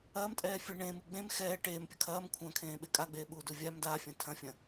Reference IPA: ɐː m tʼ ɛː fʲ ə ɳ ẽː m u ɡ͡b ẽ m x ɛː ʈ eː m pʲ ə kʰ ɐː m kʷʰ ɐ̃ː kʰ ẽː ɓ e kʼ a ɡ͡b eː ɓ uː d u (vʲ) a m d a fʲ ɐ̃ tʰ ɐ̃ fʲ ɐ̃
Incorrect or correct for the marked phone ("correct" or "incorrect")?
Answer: correct